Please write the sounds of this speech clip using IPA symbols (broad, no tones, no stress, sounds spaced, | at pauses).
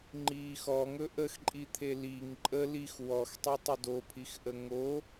ŋ͡ǃ iː x ɔ ŋ ɵ ʔ ə x ǃʼ i t̪ʰ e l i ŋ ǃʼ ə l i x w ɔ x tˤ e tˤ ə d o pʰ i x ʔ ə ŋ o